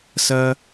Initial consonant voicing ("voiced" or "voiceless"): voiceless